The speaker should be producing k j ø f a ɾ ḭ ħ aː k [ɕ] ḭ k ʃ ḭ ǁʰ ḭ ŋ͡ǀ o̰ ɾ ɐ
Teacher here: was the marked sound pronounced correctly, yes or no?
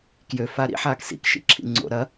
no